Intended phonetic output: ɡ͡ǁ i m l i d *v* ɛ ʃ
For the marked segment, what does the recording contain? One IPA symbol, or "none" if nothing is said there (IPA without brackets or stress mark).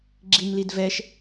v